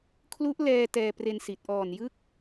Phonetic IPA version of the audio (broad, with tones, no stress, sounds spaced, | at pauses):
kʰ l u˦˥ ʔ l ɛː˧ t ɛː˧ p r e˧ n s i˨˩ t̚ ʔ ɔː˨˩ n j ɯ˦˥ k̚